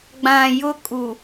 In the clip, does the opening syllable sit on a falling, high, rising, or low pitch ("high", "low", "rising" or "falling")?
low